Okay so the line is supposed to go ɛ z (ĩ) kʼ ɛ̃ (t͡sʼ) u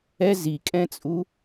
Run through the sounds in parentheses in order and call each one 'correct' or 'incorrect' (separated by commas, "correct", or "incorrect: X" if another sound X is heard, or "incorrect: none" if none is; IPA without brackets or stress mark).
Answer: incorrect: i, correct